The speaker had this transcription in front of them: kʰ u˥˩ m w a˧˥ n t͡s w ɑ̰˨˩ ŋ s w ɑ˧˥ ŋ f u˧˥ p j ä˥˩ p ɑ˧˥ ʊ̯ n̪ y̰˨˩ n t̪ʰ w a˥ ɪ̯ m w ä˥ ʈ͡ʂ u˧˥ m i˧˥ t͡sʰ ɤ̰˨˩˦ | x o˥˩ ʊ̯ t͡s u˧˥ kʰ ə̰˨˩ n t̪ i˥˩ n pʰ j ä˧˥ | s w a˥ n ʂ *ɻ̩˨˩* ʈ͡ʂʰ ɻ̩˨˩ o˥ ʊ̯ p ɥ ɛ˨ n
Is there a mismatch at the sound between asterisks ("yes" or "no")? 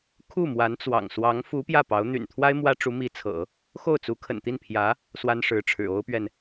yes